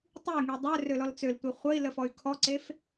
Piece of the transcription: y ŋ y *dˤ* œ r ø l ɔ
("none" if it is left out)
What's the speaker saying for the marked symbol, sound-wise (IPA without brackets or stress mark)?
dˤ